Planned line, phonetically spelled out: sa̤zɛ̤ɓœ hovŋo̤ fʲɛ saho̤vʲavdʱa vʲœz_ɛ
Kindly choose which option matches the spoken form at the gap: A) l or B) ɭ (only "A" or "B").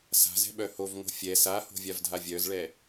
B